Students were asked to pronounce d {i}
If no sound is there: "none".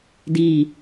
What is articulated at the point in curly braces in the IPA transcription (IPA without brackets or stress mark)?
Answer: i